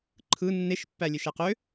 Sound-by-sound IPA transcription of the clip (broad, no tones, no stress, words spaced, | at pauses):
ǃʰɯ nːeʃpːælʲeʃæ qø